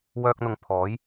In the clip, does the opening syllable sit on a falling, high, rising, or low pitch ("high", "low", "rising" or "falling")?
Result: high